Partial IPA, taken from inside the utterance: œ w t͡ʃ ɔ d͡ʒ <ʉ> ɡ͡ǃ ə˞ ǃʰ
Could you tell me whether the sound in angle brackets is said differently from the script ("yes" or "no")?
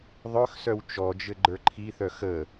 yes